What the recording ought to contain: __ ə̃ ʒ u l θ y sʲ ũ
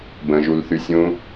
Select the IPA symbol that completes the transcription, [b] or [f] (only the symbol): b